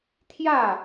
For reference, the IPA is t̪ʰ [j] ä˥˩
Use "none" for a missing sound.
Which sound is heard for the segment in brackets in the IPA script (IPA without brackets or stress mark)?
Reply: j